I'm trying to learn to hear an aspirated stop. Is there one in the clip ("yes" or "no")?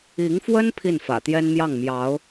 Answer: yes